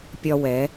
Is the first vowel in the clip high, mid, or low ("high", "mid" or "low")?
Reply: low